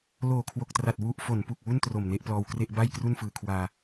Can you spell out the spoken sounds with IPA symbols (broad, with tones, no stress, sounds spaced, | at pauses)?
l oː˨˩ kʰ w o˨˩ k̚ t r a˨˩ t̚ w u˨˩ ʔ f o˩˦ n p u˨˩ k̚ w u˥˩ n t r o˨˩ m n e˦˥ ʔ p l ɔː˧ w k r e˥˩ ʔ b a˥˩ j k r u˥˩ n f ɯː˨˩ kʰ w aː˧